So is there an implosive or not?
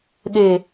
yes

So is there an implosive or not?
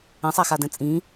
no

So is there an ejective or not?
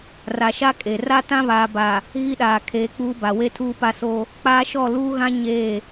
yes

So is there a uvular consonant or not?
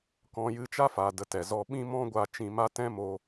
no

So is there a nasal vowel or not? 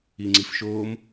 no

